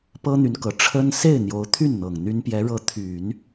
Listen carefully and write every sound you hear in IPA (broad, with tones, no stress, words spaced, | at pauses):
pɤ˥n̪y˧˥nkɤ˨˩ ʈ͡ʂʰə˥n se˥˩ɪ̯n̪jo˧˥ʊ̯t̪ʰy˥˩n n̪ɤ˨˩ŋn̪y˥n pjɛ˧˥ɻɤ˧˥ t̪ʰy˨˩˦n